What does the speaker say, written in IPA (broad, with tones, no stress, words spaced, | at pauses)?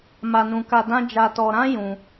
ma˧nũ˧ka˧dã˦ d͡ʒa˧tɔ˧ ɾã˦ jũ˧